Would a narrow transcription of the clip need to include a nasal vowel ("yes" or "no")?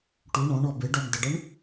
yes